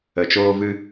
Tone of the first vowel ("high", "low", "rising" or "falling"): low